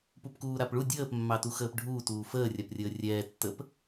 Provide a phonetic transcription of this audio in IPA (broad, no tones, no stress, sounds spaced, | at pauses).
p u p k uː ɾ a p ɭ u dʲ əː p mː ɑ t u x əː p ɖʱ uː t uː f əː rʲ a p rʲ əː rʲ ɛː tː ə p